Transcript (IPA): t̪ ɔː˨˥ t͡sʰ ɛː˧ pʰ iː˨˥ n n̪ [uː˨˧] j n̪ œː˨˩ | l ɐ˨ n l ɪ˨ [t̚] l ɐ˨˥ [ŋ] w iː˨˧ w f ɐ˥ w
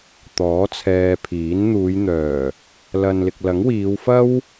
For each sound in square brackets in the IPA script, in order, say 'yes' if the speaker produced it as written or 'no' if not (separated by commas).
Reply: yes, no, yes